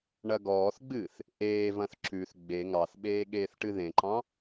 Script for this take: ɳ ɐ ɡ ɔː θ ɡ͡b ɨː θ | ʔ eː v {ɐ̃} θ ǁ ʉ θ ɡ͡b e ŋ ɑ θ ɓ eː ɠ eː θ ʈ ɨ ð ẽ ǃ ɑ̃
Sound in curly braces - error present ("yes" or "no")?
no